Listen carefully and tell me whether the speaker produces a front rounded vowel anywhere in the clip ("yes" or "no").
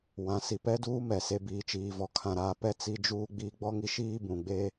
no